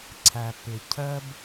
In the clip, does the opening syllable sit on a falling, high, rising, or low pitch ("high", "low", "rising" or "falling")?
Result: low